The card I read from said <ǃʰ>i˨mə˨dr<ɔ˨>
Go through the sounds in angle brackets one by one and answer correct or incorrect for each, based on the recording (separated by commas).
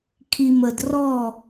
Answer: incorrect, incorrect